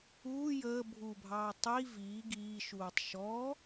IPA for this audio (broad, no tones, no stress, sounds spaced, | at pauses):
uː j əː bʱ u bʱ ɑː tˤ i v iː ɡ iː ʃ uː tˤ ʃ ɔ